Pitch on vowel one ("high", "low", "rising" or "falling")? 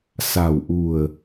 low